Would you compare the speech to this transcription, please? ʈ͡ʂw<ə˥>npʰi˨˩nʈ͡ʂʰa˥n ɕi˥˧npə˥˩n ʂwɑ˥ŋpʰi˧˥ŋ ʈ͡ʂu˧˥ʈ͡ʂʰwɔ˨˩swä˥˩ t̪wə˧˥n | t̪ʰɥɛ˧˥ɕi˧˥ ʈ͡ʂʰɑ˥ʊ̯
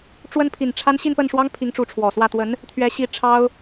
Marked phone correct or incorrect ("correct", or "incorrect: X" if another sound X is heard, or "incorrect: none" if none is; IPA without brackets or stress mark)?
correct